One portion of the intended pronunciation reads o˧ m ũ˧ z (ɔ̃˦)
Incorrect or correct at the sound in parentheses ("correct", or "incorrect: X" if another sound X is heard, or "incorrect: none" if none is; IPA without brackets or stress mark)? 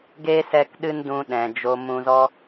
incorrect: ɔ˦